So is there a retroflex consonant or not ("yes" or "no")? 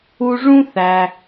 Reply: yes